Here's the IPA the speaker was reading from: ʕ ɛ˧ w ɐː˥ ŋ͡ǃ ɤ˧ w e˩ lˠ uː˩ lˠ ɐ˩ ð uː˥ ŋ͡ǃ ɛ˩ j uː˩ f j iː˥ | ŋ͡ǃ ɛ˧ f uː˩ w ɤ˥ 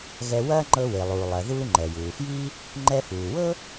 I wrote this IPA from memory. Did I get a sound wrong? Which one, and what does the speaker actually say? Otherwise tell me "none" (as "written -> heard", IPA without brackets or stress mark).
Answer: ʕ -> ɣ